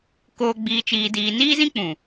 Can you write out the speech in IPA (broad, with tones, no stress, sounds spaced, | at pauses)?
k oː˨ ɡ͡b iː˨ t͡ʃ iː˨ d iː˨ n iː˦ z ĩ˦ k͡p ũ˨